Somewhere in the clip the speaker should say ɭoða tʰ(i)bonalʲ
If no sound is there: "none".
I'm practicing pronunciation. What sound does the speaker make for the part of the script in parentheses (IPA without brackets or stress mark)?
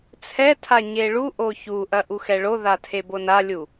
e